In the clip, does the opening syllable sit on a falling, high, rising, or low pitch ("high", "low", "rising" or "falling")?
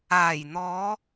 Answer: low